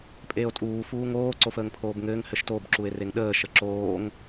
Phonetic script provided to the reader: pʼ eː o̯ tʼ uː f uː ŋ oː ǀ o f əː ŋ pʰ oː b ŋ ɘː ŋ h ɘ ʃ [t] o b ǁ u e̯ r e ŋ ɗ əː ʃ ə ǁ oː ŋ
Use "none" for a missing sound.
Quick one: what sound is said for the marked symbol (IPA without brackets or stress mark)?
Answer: t